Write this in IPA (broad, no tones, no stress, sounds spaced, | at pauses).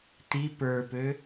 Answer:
t i p ə˞ p ø